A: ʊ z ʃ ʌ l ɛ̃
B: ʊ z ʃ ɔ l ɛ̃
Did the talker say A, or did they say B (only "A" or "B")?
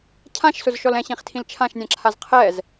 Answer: B